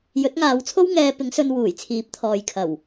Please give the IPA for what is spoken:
j ɵ˨˥ t̚ ŋ aː˨˧ w t͡sʰ o˥ w ŋ ɛː˧ p ɪ˨˥ ŋ s ɵ˧ n w uː˨˩ j t͡sʰ iː˨˥ p̚ t̪ʰ ɔː˨ j kʰ ɐ˨˩ w

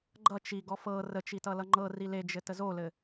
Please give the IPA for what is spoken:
ɡ͡ǃ ʌ t͡ʃ i ɡ ɔ f ɤ r ə t͡ʃ i t ʌ l ʌ ŋ͡ǃ ɤ r i l e d͡ʒ ɘ t ə z o l ɘ

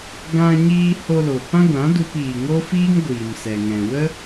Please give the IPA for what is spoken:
ɡ ã˧ ɲ iː˧ h o˧ l o˨ p ã˦ ɡʷ ã˨˦ d u˧ p iː˨ ŋ o˦ f iː˦ ŋ ɡʷ iː˨ m s ɛ˨ ŋ ɛ̃˨ w ə˦

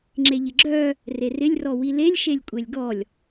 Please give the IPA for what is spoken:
ŋ͡ǁ e ʎ ɪ ɡ͡ǁ œ | r e r ɪ lʲ r ɔ w i l e lʲ ʃ e lʲ kʷʼ e lʲ ɡ ɔ lʲ

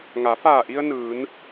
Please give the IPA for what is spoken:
ŋ a˩˧ f aː˧˩ ʔ i˧ ə̯ n ɯː˩˧ n

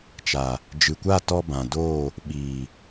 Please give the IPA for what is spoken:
t͡ʃ a˨ | d͡ʒ ɨ˨ kʷ a˦˨ t ɔ˧ b ã˨ d oː˦˨ | ɓ iː˨

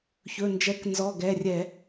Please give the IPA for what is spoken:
ç ɵ˩˧˩ n d͡ʒ ɛ˨˦ k n z ɔ˩˧˩ ɡ ɛ˩˧˩ rʲ ɛ˧˩˧

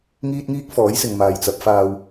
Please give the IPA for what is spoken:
ŋ iː˥ t̚ ŋ iː˥ k̚ f ɔː˨˥ j s ɪ˨ ŋ m aː˨ j t͡s ɐ˨˥ p̚ f aː˧ w

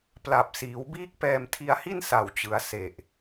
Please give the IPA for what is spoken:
p l a˨˩ p̚ s iː˩˦ w b iː˦˥ k̚ p ɛː˧ m tʰ i˧ a̯ h i˥˩ n s a˨˩ w t͡ɕ ɯ˩˦ a̯ s e˨˩ ʔ

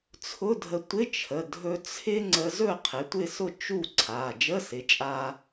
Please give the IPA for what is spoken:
t͡sʰ ʊ˧˥˧ dʱ ə˧ tʷ ɪ˧˥˧ t͡ʃʰ ə˩˧˩ dʱ ɵ˧ t͡sʰ ɪ˥ ŋ͡ǀ ə˧ z ɵ˥˨ qʰ ɪ˩˧˩ tʷ ɪ˥˨ s ʊ˥˨ t͡ʃ u˥˨ ǀʰ a˩˧˩ d͡ʒ ə˧˥˧ s ɪ˩˥ t͡ʃʼ a˧

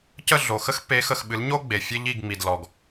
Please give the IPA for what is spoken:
c ə˦˨ ɮ o˨ x ə˦ x pː e˨˦ x ə˨ x ɓ ɨ˨˦ l ɲ o˦ ɡ͡b e˨ fʲ e˦ ʎ i˦˨ ɡ ŋ͡m i˨ d l ɔ˨ ɡ

